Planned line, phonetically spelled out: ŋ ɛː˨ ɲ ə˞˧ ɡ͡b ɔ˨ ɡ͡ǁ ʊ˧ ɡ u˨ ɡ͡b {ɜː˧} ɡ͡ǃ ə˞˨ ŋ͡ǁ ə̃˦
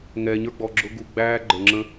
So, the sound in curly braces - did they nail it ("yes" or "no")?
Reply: no